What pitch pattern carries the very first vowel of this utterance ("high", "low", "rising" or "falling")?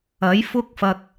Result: rising